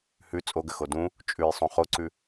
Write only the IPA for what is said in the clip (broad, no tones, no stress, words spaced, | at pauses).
hʉ t͡sʼoɡəxo dũ | t͡ʃʼʉjsˤõ χoǀʉ